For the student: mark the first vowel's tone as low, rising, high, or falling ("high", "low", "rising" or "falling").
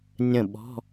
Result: falling